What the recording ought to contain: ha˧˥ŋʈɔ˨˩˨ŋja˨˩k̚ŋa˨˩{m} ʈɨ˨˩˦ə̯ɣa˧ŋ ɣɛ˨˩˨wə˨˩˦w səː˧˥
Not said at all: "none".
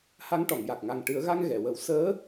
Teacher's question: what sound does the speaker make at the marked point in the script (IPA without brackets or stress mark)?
ŋ